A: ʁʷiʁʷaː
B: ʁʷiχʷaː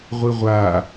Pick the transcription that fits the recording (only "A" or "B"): A